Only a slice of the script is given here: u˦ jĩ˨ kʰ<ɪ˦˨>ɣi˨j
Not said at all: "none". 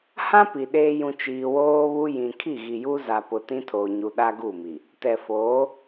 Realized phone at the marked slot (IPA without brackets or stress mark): i˦˨